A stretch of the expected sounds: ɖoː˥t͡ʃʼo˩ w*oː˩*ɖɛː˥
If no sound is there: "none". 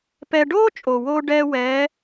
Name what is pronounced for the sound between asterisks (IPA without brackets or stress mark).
oː˥